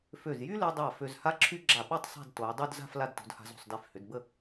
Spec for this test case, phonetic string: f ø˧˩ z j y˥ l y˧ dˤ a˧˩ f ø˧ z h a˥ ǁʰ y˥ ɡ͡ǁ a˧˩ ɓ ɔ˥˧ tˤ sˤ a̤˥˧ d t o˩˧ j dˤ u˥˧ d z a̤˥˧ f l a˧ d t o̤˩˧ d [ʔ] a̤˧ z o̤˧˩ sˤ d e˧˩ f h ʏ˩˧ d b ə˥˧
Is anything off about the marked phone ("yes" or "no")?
yes